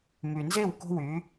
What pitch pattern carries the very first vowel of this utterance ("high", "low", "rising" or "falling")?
low